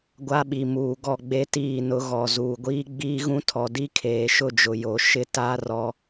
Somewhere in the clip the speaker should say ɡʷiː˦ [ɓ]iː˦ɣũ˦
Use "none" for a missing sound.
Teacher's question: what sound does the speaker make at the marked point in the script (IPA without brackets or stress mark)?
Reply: ɡ͡b